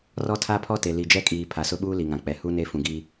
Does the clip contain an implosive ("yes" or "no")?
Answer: yes